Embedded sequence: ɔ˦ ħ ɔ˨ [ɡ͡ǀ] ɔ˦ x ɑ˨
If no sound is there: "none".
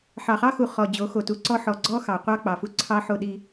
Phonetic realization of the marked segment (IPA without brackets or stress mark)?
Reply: ɡ͡ǀ